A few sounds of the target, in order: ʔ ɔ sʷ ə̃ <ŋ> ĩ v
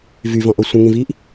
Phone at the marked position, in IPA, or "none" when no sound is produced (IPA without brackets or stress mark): ŋ